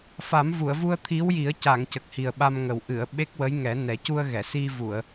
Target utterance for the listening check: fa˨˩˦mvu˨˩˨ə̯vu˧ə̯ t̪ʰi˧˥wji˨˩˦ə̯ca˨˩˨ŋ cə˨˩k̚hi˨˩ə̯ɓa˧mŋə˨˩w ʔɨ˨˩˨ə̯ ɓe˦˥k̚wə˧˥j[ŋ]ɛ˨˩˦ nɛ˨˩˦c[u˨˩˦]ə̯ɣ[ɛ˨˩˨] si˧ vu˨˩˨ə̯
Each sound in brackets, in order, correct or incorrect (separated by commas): correct, incorrect, correct